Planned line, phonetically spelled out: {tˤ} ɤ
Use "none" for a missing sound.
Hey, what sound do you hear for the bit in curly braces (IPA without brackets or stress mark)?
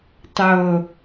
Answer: tˤ